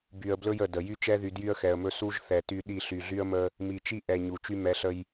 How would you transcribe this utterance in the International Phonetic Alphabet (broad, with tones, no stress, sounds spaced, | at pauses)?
b y˨ ə̯ b l ɵ˦ j ə˨ d ə˨ j y˦ t͡ʃ ɛ˦ ð y˨ d j y˦ ə̯ x ɛ˨ ə̯ m ɵ˦ s u˦ ʒ θ ɛ˨ t y˦ ɗ i˦˨ ɬ y˨ ɮ y˦ ə̯ m ə˦ | m i˨ t͡ʃ i˦ ʔ ɛ˨ ɲ u˨ t͡ʃ y˦ m ɛ˨˦ ɬ ə˦ j